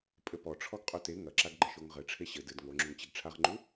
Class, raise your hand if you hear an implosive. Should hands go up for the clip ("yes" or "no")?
no